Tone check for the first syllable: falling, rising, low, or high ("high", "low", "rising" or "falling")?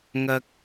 high